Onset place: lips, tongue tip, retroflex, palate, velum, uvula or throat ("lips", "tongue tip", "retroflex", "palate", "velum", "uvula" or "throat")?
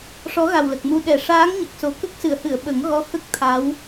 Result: retroflex